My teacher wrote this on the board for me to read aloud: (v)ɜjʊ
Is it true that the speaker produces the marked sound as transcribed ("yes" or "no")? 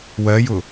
no